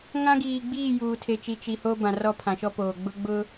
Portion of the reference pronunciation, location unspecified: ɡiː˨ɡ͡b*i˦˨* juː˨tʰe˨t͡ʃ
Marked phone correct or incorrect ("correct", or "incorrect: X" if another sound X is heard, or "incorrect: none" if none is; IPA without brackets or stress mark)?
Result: incorrect: iː˦˨